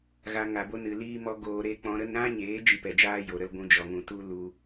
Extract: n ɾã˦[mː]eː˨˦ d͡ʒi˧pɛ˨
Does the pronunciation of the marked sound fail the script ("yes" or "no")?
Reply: yes